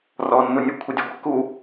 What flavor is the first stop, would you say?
aspirated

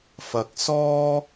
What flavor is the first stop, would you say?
plain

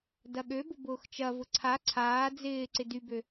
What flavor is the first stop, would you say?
plain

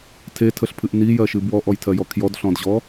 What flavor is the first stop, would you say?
aspirated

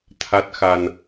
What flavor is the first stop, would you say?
aspirated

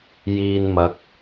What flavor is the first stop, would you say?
plain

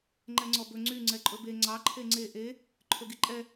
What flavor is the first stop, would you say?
click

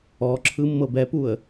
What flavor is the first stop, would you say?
click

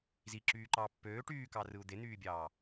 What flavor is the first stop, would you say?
click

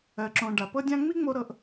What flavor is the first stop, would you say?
click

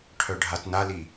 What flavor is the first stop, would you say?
aspirated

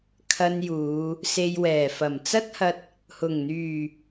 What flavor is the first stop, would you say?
aspirated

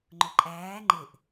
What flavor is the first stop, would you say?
click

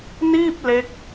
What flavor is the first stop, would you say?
plain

